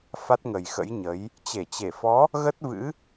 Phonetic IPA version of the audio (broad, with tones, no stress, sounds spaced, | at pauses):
f a˦˥ t̚ ŋ ə˨˩ j x ə̰˧˥ j ɲ ə˨˦ j | t͡ɕ e˧˩ t͡ɕ e˧˩ f ɔ˨˦ | ɣ ə˦˥ t̚ v ɨ̰˧˥